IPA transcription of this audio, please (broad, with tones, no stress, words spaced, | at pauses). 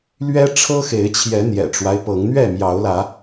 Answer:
lɥɛ˦ʈ͡ʂʰɤ˦xe˨˦ɪ̯t͡ɕʰjɛ˨˦ n̪jɛ̰˨˩ʈ͡ʂwa˦ɪ̯pɤ˨˦ŋ n̪ɥɛ˥˨mjɑ˨˦ʊ̯lä˨˦